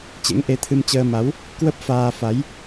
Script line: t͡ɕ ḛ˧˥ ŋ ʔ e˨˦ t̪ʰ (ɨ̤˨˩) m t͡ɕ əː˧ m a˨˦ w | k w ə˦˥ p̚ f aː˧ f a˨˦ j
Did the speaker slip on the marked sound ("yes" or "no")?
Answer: yes